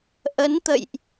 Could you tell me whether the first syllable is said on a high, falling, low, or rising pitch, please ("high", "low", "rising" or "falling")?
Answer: rising